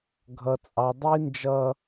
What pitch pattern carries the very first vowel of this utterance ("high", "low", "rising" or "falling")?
high